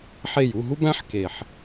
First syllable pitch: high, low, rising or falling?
falling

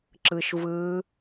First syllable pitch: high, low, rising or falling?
low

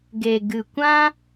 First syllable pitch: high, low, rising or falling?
low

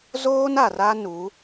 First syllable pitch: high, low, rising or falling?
high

